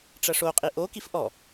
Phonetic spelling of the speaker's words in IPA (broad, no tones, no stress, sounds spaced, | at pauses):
ʈ͡ʂ ɐ ʂ o qʼ i ʔ o k i f ʔ ɔ